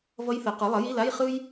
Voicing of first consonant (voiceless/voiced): voiced